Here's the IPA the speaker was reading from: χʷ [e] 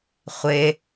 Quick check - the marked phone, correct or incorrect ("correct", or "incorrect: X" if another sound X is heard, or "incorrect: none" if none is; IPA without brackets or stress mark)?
correct